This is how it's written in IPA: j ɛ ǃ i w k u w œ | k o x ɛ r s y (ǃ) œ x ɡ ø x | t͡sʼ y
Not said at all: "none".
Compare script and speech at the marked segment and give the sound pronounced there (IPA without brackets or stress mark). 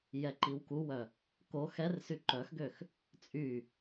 ǃ